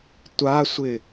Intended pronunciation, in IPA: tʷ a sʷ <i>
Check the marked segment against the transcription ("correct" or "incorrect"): incorrect